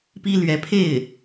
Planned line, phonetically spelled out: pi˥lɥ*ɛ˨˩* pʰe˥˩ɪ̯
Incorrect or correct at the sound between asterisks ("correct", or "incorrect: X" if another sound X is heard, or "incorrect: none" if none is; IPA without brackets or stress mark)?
incorrect: ɛ˧˥